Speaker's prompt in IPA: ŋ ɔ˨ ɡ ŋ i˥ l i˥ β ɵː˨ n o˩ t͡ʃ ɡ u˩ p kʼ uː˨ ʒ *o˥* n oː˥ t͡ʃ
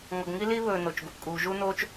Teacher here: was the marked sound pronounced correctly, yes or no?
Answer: no